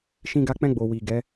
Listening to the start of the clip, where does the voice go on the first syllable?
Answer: high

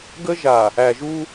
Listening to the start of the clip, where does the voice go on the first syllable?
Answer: high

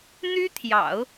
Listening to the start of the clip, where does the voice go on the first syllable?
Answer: high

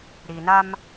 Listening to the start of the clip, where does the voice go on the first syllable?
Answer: low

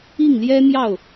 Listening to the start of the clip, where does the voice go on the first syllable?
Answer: falling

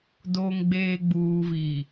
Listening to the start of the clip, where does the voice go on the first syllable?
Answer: low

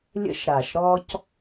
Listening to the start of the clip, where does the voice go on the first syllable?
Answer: high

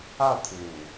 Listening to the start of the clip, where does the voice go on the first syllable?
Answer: falling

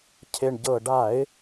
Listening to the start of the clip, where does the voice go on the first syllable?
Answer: low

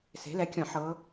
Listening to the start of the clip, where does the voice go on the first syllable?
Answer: rising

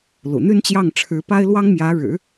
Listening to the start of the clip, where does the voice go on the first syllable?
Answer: low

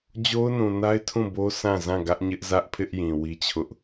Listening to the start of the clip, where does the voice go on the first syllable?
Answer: high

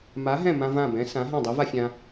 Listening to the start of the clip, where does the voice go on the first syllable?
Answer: rising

